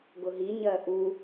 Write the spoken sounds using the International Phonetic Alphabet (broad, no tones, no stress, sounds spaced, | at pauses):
ɡ ʊ ɦ i ɲ ɜ ʔ u